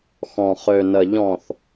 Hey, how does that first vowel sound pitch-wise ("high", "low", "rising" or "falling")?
low